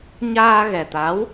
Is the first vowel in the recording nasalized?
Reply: no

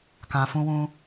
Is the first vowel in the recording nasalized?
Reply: yes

